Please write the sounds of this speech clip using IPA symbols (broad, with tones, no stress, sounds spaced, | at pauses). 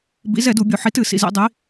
b ḭ˨˥ z ɛ˨˩˦ d u˨˩˦ bʲ u˨ ħ i˨˥ t ɨ˨˩˦ s ḭ˨ z ḭ˨˩˦ dˤ i˨˥